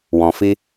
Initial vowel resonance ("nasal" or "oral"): nasal